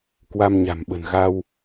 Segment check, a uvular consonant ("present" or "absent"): absent